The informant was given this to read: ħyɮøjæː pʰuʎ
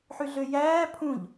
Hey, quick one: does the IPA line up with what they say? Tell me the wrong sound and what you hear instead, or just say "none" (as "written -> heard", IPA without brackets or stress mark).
u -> ũ